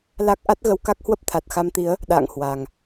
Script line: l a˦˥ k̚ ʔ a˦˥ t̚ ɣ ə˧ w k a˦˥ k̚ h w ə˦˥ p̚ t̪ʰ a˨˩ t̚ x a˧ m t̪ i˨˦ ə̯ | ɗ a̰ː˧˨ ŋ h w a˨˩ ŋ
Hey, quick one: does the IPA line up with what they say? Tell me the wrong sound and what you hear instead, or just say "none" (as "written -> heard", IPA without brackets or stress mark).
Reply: none